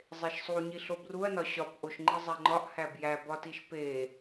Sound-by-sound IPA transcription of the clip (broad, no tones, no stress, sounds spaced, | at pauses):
zˤ e ʃ sˤ u ɲ i ɬ o b r u ɐ̯ n ɒ ɕ ɒ p ʔ o ʃ ŋ͡ǃ i zˤ æ ŋ͡ǃ ɒ ʔ h æ b j æ b ɒ t i ʃ p e